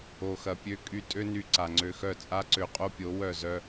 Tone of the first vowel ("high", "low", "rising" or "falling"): low